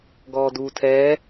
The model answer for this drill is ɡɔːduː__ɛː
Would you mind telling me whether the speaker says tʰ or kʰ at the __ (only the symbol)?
tʰ